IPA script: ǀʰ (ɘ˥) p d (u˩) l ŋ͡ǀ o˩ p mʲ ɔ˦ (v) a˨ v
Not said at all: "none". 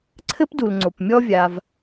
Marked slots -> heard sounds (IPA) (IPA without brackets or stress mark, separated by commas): ɘ˥, u˩, vʲ